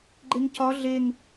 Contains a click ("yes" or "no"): yes